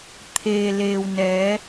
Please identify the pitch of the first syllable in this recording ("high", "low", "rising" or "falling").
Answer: low